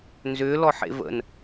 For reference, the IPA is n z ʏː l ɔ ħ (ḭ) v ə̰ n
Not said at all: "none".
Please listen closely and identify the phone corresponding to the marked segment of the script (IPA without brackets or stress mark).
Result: ḛ